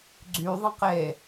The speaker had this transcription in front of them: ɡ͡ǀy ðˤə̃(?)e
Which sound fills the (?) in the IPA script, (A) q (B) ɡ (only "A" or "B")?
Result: A